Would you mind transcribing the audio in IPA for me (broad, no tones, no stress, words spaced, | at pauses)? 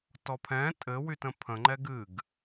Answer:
tɔpʰɛ̃ tʼɘ wytə̃pʰə̃ŋ͡ǃɛɡ ɨɡ